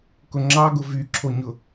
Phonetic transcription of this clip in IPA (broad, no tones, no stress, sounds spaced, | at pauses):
k ʊ ŋ͡ǁ ɑ ɡ ʊ v y ǁʰ o ɲ ʊ